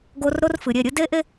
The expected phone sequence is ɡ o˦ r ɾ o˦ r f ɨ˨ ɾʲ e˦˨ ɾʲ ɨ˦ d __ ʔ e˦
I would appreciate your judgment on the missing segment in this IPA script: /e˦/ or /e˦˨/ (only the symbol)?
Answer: e˦